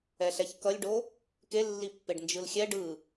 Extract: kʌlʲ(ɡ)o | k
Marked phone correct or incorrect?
incorrect: ɖ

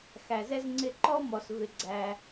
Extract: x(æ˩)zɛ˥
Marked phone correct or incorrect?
correct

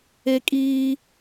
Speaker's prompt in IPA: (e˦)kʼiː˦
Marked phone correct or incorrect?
correct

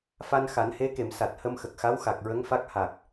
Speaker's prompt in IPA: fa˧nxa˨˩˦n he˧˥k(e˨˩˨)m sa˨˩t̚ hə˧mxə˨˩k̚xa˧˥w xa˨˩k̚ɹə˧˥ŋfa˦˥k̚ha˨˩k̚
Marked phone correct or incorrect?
correct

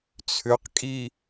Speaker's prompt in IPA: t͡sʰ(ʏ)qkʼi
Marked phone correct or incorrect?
correct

